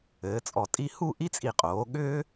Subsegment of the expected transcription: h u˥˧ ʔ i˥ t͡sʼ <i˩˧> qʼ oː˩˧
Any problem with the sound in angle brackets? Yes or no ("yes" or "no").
yes